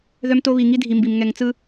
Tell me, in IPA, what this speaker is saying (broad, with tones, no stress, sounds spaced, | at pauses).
ð œ˦ m t o˦ β i˨ ŋ i˦ dʱ i˨ m b i˨ m ŋ ɛ˨ ŋ t͡s ɯ˦